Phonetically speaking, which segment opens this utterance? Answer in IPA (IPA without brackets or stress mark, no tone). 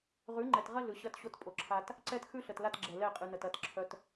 ʁ